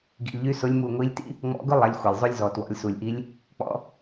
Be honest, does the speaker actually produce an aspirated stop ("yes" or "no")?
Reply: no